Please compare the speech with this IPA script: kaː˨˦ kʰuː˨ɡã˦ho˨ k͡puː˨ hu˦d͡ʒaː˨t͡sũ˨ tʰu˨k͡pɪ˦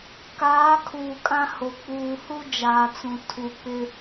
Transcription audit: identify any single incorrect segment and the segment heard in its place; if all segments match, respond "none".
ɡ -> kʼ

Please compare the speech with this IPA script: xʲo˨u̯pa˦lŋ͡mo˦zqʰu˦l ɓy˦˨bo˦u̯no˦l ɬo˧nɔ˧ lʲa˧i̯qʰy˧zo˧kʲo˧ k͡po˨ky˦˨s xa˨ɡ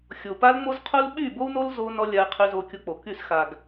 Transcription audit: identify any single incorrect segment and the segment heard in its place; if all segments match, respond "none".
ɬ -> z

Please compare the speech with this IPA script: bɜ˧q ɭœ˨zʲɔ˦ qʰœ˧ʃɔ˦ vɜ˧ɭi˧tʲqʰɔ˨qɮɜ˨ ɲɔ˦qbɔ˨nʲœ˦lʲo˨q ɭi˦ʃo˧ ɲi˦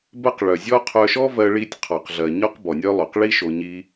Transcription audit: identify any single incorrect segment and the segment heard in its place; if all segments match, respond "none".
lʲ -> lˠ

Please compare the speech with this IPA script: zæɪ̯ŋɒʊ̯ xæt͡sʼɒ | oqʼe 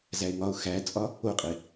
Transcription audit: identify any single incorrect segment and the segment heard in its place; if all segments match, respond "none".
none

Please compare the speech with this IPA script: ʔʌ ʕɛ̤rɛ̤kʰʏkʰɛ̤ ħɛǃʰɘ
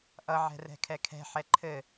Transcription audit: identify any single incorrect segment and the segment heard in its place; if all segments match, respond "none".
ʏ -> ɛ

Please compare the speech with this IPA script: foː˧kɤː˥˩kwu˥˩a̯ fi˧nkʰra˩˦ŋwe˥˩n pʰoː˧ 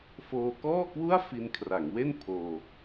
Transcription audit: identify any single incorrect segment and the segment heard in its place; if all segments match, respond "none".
ɤː˥˩ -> ɔː˥˩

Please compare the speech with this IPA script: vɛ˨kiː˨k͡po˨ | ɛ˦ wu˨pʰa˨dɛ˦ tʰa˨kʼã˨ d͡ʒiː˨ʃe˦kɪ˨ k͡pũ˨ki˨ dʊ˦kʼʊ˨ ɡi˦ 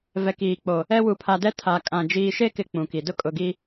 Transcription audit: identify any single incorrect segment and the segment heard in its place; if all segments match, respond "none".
none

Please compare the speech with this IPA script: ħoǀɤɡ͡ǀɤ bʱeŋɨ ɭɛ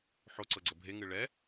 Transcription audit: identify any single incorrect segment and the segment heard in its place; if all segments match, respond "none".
none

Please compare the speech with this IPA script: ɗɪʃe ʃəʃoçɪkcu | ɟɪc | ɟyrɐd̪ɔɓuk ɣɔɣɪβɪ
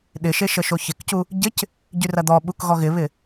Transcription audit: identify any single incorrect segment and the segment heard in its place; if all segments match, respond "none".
none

